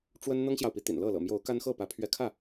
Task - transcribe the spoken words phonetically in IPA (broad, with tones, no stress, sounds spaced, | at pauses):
ʈ͡ʂ w ə˦ n n̪ ɤ˦ ŋ ɕ j ɑ˨ ʊ̯ p i˨˦ t̪ ḭ˨˩ n l ɤ˥˨ l ɤ̰˨˩ m j o˨˦ ʊ̯ k a˦ n x ɤ˥˨ p ä˨˦ pʰ ɥ ɛ˨˦ kʰ ä˥˨